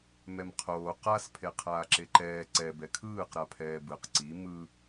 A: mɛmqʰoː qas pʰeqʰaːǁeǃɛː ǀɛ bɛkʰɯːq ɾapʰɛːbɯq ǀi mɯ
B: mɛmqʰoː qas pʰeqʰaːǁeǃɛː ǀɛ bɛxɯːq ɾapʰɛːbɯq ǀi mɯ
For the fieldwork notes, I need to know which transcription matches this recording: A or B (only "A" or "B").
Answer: A